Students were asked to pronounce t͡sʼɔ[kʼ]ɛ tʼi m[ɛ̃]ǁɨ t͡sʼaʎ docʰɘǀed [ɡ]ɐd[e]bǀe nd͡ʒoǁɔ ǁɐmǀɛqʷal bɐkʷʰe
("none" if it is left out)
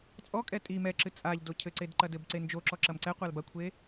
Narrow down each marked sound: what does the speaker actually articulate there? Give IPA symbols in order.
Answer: kʼ, ɛ, ǃ, ɘ

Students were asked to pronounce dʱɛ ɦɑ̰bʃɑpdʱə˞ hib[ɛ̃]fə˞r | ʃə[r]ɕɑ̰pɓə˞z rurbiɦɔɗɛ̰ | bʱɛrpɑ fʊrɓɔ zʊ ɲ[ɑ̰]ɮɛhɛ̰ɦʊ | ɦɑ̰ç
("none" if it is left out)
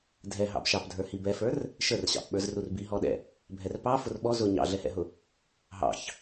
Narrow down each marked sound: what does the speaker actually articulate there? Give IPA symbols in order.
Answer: ɛ, r, ɑ̰

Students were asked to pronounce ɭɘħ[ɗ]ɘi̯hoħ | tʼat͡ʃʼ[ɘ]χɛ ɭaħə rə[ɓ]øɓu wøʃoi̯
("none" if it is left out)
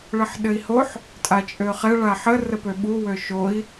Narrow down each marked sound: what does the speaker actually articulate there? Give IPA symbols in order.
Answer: ɗ, ø, p

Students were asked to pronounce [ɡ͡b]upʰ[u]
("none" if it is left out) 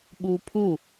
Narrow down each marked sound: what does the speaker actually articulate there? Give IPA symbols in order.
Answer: ɓ, u

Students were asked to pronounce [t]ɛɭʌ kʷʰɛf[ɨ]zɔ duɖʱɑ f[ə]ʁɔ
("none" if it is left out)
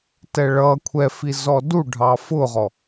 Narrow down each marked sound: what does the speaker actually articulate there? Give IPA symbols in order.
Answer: t, i, ʊ

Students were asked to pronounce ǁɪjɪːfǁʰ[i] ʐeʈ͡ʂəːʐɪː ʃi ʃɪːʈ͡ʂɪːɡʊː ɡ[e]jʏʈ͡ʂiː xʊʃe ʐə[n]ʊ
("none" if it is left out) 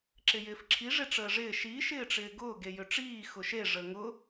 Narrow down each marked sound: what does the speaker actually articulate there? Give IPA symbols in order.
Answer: i, e, ŋ

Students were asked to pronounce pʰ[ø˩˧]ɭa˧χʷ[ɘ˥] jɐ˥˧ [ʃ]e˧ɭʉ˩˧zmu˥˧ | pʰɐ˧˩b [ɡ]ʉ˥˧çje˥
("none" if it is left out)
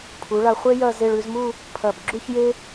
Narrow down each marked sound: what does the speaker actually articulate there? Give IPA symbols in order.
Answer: u˩˧, e˥, z, ɡ͡ǁ

